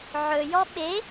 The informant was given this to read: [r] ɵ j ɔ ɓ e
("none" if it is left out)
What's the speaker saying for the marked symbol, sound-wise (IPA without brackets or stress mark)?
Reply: ʕ